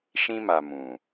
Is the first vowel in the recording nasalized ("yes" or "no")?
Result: yes